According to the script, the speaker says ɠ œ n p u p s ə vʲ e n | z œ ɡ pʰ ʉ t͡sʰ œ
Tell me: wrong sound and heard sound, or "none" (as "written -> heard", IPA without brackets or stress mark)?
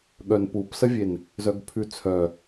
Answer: none